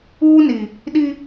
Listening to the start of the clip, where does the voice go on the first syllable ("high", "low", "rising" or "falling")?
high